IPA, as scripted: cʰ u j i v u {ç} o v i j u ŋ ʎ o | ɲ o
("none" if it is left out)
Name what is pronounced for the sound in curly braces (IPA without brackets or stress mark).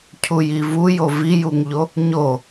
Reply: j